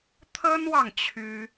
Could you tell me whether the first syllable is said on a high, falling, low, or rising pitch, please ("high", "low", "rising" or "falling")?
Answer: high